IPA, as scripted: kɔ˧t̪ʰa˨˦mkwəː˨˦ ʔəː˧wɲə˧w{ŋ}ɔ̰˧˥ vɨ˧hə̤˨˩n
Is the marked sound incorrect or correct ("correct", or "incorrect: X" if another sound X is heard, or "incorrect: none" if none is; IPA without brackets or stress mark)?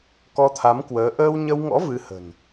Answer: correct